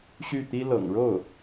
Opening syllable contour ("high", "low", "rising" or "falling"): falling